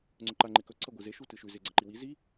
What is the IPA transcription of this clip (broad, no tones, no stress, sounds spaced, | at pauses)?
ŋ͡ǀ ɵ ǃ a ŋ͡ǃ e k ɵ ǀʰ ɐ ɡʷ ɨ z e ʃ u t ɨ ʃ ʉ z e ɡ͡ǀ ɐ ǃ i w i z i